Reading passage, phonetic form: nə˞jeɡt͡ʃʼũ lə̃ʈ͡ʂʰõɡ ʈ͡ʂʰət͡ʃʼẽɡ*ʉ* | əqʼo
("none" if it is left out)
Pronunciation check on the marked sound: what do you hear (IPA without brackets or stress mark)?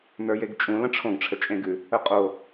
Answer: ʉ